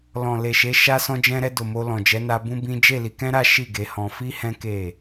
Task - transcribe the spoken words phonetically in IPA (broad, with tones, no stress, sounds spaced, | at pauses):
l ɔ̃˨ l e˨ ʃ e˨˦ ʃ a˧ s ɔ̃˧ d͡ʒ ɛ̃˧ ɾ ɛ˧ d o˨ m o˧ l ɔ̃˨ d͡ʒ ɛ˨˦ n a˧ b ũ˦ b ĩ˦ d͡ʒ e˦˨ l i˨˦ k ɛ̃˦ ɾ a˦ ʃ i˦˨ ɡ e˨˦ h ɔ̃˧ f i˦ h ɛ̃˦ k e˦˨